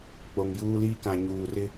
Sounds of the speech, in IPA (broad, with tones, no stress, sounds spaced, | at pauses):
k͡p o˨ ŋ j uː˦ l iː˦ k ã˨ ɲ uː˨ r ɪ˦